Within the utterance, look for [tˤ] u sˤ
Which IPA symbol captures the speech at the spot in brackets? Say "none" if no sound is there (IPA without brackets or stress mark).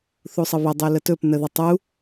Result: θ